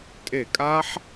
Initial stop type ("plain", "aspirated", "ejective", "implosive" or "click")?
ejective